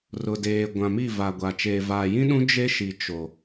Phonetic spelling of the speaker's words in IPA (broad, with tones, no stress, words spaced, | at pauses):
rʊ˨deː˨ɡʷã˨mi˦˨ va˨ɡʷa˨ t͡ʃeː˨vaː˨jĩ˦ɗũ˦ d͡ʒe˦ʃi˨ t͡ʃo˨